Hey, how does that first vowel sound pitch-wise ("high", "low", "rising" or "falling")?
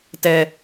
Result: high